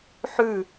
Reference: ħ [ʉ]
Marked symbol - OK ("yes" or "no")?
yes